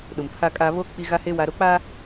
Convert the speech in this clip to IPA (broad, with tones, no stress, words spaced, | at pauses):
ɗʊ˨mpʰa˦kʼa˦ βo˦ k͡pi˦ ɣa˦he˦ wa˦ ɾo˦ k͡pa˦